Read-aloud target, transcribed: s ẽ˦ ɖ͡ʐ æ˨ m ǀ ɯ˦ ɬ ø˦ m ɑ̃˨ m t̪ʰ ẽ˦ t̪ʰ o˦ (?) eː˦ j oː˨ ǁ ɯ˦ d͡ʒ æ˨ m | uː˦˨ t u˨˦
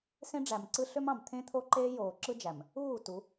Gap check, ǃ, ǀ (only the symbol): ǃ